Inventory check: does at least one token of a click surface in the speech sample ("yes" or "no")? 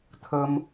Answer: no